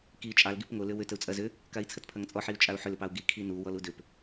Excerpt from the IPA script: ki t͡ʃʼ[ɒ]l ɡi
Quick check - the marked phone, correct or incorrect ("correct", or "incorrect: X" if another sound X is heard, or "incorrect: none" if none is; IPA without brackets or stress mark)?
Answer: incorrect: ɑ